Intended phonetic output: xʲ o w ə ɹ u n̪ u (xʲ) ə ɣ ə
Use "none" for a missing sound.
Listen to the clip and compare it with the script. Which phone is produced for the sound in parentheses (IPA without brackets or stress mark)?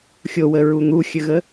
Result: xʲ